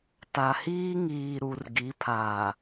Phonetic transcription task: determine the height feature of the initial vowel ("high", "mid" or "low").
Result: low